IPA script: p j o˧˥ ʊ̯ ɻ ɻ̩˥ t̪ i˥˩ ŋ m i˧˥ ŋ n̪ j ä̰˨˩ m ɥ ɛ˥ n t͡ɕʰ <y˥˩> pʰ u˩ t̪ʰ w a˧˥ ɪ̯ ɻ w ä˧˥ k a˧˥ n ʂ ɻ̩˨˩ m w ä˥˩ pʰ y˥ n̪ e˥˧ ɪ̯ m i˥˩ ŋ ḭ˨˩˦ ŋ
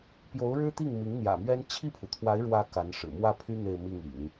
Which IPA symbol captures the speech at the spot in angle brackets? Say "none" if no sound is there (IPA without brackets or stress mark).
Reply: i˥˩